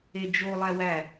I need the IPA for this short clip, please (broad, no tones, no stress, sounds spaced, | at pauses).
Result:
e d͡ʒ o lˠ æ w æ